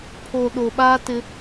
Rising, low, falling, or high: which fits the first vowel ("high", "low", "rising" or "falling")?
low